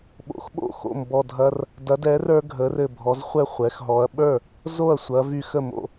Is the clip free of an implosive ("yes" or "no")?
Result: no